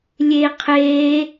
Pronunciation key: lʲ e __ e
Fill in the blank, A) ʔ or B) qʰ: B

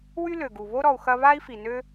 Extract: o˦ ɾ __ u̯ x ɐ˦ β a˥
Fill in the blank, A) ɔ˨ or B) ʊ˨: A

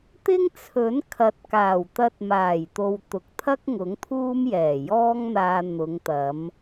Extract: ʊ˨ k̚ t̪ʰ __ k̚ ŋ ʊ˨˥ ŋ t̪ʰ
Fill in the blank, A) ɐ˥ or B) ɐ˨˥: A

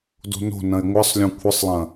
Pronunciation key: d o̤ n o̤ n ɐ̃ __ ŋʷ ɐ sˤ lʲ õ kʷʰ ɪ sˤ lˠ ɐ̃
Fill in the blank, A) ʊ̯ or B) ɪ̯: B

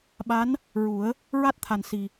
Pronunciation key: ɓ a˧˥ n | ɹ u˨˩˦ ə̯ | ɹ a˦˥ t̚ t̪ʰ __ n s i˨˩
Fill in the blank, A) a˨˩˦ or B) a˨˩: B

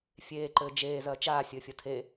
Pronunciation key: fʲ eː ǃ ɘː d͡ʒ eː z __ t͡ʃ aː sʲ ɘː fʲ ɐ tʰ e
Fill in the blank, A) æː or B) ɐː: B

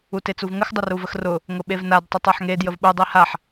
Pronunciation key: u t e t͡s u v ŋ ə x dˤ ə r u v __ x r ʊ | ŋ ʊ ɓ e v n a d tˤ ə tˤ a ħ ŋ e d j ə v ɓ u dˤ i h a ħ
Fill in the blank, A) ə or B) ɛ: A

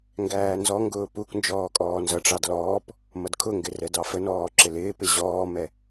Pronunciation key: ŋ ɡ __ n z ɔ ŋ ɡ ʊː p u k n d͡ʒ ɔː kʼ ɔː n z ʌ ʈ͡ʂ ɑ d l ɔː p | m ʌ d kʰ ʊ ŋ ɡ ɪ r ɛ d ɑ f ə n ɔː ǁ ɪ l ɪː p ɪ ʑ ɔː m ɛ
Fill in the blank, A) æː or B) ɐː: A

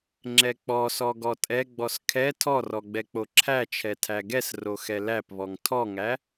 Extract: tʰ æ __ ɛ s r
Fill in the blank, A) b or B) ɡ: B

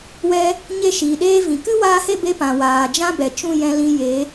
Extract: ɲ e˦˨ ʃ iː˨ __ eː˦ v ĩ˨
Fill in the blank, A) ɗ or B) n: A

